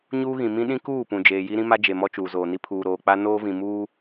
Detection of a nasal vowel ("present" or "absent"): present